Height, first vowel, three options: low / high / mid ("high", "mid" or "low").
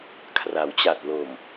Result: low